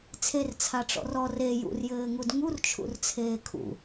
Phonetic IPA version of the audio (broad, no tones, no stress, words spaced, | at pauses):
t͡sʰert͡sʰaʈ͡ʂɔ̰r ɔr e jṵrjɘːŋud ŋurt͡ʃʰṵrt͡sʰeː kʰṵ